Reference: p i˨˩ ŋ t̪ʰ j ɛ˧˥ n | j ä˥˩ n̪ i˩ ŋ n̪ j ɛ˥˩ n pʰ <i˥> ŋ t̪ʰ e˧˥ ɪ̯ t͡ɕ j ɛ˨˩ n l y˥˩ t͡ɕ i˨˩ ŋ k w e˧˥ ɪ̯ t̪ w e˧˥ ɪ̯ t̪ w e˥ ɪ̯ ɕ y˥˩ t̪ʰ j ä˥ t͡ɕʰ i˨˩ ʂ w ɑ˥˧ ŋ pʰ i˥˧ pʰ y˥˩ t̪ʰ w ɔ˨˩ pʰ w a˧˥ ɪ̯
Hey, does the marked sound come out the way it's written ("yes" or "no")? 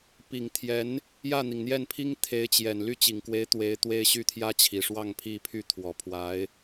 yes